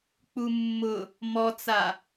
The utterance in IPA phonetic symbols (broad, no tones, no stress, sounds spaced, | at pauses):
k͡p u mː ʊ | m ɔ t͡s a